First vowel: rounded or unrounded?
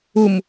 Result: rounded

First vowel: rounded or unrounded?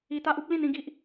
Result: unrounded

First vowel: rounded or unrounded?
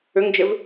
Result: rounded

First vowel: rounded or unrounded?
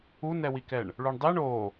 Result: rounded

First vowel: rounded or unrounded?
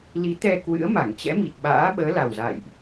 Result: unrounded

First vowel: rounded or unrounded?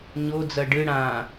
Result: rounded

